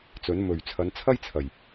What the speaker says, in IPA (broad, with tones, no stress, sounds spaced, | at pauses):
t͡s ɵ˨˥ n m ɵ˨˩ ɥ t͡sʰ ɐ˨˧ n t͡sʰ ɐ˥ j t͡sʰ ɐ˨˩ j